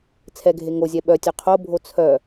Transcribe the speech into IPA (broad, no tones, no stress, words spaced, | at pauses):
t͡sʰɛɡʱe ŋozʲɛ ɓœtʲœ qʰobʱo t͡sʰœ